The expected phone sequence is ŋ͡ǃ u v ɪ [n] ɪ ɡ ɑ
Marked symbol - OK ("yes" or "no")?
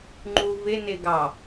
yes